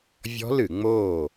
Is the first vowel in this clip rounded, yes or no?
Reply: yes